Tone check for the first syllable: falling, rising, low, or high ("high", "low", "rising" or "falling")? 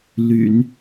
low